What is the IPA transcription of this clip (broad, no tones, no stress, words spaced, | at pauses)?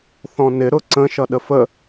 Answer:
θɔ̃nɪ ɾʊǀə̃ ʃʌɗəfə